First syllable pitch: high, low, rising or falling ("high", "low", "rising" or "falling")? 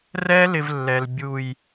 high